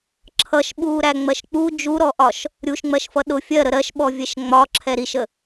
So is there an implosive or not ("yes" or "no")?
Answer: yes